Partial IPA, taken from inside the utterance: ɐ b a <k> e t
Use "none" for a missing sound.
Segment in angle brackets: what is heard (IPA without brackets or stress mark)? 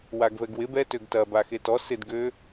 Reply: x